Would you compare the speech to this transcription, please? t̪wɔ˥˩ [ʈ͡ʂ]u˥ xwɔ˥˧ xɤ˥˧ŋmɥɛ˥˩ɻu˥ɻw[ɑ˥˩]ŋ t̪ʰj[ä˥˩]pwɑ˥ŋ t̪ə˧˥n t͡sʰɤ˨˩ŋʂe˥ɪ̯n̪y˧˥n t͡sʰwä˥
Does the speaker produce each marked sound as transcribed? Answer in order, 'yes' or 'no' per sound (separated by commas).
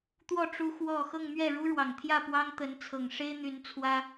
yes, no, yes